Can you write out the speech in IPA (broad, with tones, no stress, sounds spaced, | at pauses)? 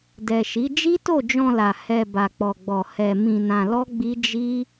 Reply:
d ɛ˨ ʃ i˨˦ d͡ʒ i˦ t o˦˨ d͡ʒ ɔ̃˧ l a˨ h ɛ˧ b a˧ k͡p ɔ˧ ɡ͡b ɔ˧ h ɛ˧ m ĩ˧ n ã˧ l ɔ˦ ɡ͡b i˦ d͡ʒ i˦